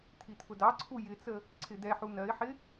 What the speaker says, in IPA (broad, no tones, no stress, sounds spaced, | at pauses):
t̪ʰ i t̪ʰ ʊ d ɑ ǀʰ u j ɪ t͡s ə | ǀʰ ɪ d̪ ɛ ħ u n ɜ ɪ̯ ħ ɪ